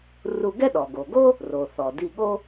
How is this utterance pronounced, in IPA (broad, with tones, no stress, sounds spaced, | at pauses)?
r u˧ ɡ ɛ˥ ɗ ɔ˩ ɡ o˩ ɡ o˥ | r o˩ θ ɔ˩ d i˧ ɠ o˥